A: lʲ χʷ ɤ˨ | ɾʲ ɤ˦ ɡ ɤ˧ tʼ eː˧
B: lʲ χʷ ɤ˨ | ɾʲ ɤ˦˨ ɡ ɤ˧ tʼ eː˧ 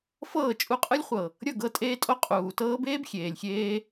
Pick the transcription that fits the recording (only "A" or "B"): B